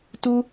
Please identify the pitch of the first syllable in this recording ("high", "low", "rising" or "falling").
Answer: high